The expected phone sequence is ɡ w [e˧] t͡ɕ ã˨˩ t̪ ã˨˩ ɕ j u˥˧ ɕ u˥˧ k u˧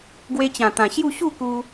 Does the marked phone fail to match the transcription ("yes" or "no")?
no